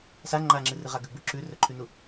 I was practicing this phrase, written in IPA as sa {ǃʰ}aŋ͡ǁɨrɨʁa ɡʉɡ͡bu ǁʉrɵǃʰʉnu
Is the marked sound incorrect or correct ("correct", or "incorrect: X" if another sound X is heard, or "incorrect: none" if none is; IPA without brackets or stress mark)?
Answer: incorrect: ŋ͡ǃ